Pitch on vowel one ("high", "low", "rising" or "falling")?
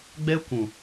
high